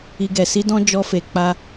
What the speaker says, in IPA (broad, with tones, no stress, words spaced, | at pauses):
i˧ɡɛ˨ si˧dɔ̃˧ d͡ʒɔ˧fe˨ k͡pa˧